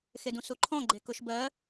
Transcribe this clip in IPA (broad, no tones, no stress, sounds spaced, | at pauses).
x e d ũ s u ǃʰ ɔ̃ ɡ͡ǃ e k ʊ ʃ b ɜ